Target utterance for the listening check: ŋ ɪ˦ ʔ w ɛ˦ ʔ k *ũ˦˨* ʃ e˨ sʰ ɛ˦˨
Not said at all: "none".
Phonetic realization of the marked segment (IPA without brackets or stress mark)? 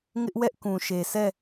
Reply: ũ˨